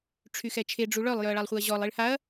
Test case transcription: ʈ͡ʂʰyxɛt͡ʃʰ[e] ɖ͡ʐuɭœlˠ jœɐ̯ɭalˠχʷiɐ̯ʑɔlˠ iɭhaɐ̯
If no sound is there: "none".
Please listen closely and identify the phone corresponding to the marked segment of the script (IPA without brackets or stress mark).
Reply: e